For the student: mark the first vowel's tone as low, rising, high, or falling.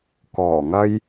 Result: low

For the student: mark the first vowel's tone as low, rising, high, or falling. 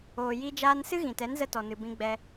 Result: low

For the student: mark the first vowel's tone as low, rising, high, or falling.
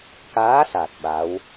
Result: rising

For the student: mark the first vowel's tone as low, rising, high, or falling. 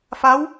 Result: rising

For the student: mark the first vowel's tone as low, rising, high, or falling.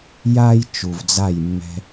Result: high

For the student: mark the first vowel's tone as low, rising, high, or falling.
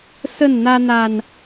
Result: falling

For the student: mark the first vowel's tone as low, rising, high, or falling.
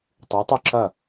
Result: rising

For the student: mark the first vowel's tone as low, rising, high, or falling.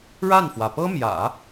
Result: falling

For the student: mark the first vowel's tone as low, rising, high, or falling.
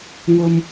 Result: high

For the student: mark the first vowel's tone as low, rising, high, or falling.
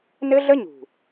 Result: high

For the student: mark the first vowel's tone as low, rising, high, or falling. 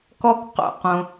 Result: high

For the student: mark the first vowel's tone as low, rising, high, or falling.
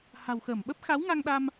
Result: low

